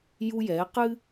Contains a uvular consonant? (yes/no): yes